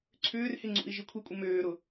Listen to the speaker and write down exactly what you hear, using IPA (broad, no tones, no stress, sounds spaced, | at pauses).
ǀʰ ʏː r h ɪ ŋ͡ǀ ṵ i̯ ʒ i kʷʰ i kʷʼ ɪ m øː ɾ ʊ